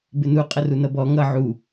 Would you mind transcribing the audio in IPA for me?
b ɪ n u qʼ ə r u n ʌ b ɔ ŋ ʌ ʕ u

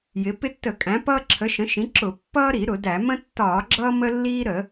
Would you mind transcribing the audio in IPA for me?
j ɪ˩˥ p ɪ˦ tː ə˧˩˧ kʼ æ̃˩˥ p ʌː˦ ǁʰ ə˩˥ ʃ ə̃˩˥ ʃ ĩ˩˥ ǁ ʊ˧˩˧ pː ʌː˦ ɾ i˧˩˧ ɾ ʊ˧˩˧ d æ˧˩˧ m ə̃˦ tː ɒː˧˩˧ ɡ͡ǁ ʌː˦ m ə˦ lː iː˦ ɾ ə˧˩˧

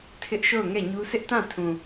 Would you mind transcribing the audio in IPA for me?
tʰ ɪ˦ ʔ ʃ o˦˨ ʊ̯ ŋ ɛ˦˨ ɲ u˦ sʰ ɪ˦ ʔ t ã˦˨ tʰ ũ˨

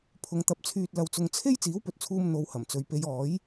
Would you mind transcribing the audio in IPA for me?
pʰ ʊ˨˧ ŋ t̪ ɐ˨˥ p̚ t͡sʰ yː˧ t̚ l ɐ˧ w t͡s ʊ˧ ŋ t͡sʰ e˥ j t͡s iː˨˥ w p ɵ˨ t̚ t͡sʰ uː˧ m n̪ o˧ w h ɐ˨˩ m t͡s ɵ˨ ɥ p e˨˧ j ɔː˨˥ j

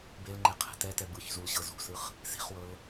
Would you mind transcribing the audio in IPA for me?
b e l ŋ͡ǃ e qʰ ɛ̤ t ɛ t ɛ b ɯ ç z u l ɕ ɤ z ṳ s ɯ χ | s i̤ χ w ɤ l

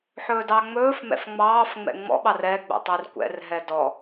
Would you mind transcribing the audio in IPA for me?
ħ ɵː d ɑ ŋ͡m ɵː f m ɛ̰ f ŋ͡m ɑː f ŋ͡m ɛ̰ ŋ͡m ɔ̰ ɓ ɑ r ɛ ɡ͡b ɛ̰ tˤ e r kʷ ɛ̰ r ɦ ɛ d ɔ

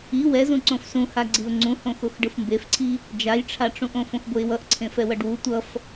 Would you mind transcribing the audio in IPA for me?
i w ɛ z ũ ǀ õ f s ũ h a ɡ͡ǀ i ʊ̯ ŋ͡ǀ ũ h õ x o x ɖ ɯ f m b e f ǀʰ i | d͡ʒ a j ʈ͡ʂʰ a ʈ͡ʂ ũ ʔ õ f õ x b o ɪ̯ w ʌ ʔ ǀʰ ẽ f ɛ w ʌ ɖ w u tʷ ʌ f

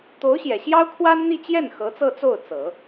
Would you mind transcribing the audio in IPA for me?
t̪ o˧˥ ʊ̯ ɕ j ɛ˨˩ ɕ j ɑ˥ ʊ̯ kʰ w a˥ n n̪ i˥˧ t͡ɕ j ɛ˥˩ n x ɤ˧˥ t͡s ɤ˥˧ t͡s o˥˩ ʊ̯ t͡s ɤ˨˩˦

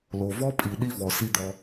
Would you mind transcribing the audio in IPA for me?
l o˨ v ɔ˦ pʼ i˨ ɗ i˦ v ɔ˨ s i˦ d̪ ɔ˦

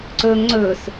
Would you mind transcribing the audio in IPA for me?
ǀ ɵː ŋ ŋ͡ǀ ɵː s

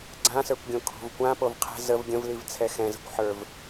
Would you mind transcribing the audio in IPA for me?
ɡ͡ǀ ã s ə˞ kʷ ɡʲ õ kʰ o̤ v kʷ ã p o v qʰ ɛ̤ z ə v ɡʲ ə̃ v l i v t͡sʰ ɛ x ɛ̃ z ə̤ kʷ ħ ə˞ v

